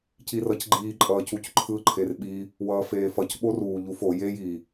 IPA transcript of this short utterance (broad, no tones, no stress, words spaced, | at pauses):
cirʌcɡ͡ǃiː ǃʼʌːcucǃʰɯ ǃʰerɓi | wʌːfeːfʌc ɓoruː ʎufo jej i